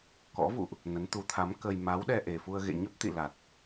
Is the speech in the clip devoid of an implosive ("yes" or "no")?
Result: no